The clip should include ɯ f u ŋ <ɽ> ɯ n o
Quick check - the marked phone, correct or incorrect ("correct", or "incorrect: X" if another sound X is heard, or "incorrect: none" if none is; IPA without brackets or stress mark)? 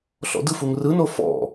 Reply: incorrect: r